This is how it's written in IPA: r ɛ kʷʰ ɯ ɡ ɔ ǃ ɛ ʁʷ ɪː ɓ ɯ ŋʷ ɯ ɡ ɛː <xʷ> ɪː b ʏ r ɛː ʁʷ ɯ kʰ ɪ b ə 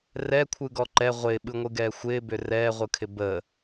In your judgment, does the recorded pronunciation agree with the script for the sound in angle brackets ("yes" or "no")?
yes